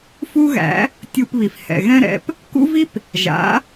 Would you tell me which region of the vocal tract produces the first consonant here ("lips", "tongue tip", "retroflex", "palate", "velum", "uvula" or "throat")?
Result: lips